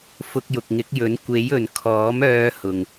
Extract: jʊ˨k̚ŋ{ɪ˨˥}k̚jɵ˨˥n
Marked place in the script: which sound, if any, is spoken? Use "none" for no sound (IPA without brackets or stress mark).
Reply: ɪ˨˥